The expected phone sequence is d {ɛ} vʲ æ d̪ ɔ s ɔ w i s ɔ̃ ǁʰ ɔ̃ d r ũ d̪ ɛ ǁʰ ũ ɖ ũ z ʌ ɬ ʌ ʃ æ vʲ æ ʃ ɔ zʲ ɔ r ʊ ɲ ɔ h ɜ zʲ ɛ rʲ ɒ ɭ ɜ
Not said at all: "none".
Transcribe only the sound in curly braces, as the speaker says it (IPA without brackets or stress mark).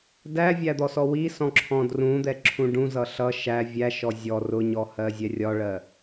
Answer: æ